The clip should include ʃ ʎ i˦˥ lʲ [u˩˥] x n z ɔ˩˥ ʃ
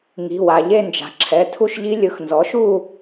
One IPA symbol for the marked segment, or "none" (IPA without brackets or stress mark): ɯ˩˥